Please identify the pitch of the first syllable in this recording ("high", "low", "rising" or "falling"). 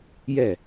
falling